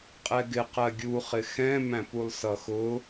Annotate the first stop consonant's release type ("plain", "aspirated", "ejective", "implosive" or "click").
ejective